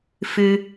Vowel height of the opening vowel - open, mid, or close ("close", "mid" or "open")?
close